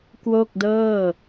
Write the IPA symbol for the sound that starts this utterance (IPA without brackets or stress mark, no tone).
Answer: k